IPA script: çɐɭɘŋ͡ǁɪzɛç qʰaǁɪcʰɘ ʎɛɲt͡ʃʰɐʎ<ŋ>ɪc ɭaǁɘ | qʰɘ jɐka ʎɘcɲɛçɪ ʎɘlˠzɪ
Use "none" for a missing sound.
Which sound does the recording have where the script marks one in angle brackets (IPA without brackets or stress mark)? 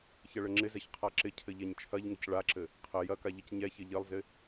ŋ